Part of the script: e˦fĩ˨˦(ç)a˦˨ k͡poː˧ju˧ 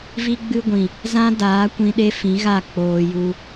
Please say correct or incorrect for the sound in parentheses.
incorrect